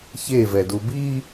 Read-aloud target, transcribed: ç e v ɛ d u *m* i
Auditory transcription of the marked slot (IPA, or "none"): b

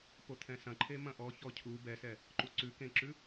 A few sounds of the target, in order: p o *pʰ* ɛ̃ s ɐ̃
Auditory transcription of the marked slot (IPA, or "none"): t̪ʰ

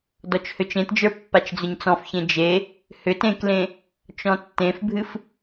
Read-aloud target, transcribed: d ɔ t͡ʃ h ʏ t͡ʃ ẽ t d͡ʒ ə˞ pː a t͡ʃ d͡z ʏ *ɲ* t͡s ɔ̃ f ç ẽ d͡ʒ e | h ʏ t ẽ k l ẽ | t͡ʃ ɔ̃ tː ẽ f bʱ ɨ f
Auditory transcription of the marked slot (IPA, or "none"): ɲ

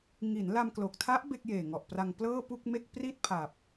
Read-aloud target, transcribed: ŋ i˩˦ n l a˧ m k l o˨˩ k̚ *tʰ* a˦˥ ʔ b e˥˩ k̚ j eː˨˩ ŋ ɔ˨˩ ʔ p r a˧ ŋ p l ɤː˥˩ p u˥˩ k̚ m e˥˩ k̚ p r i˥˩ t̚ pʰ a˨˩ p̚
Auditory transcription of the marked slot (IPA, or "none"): tʰ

